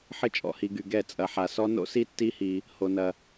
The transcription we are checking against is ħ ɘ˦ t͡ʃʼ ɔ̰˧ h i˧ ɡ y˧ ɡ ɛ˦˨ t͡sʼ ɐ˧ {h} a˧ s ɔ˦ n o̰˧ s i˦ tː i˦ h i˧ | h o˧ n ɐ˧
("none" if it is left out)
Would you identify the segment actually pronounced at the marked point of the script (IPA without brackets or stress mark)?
ħ